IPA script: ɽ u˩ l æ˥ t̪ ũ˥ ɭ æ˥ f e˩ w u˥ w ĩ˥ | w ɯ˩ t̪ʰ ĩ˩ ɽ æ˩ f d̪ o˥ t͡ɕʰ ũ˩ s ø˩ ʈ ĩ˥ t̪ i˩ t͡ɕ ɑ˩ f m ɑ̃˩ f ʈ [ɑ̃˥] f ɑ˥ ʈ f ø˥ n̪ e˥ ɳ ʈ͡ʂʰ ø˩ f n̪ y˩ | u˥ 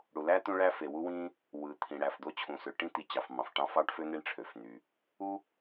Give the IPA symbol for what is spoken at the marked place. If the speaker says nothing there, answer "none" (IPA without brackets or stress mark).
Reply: ɑ̃˥